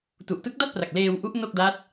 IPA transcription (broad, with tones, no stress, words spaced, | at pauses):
tu˨˩ʔtɯ˦˥k̚da˥˩t̚pra˨˩k̚ leː˧wʔu˦˥ʔ no˥˩k̚da˦˥t̚